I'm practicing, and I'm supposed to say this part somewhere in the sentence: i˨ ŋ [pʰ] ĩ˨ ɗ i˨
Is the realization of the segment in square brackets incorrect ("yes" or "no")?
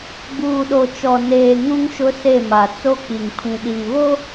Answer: no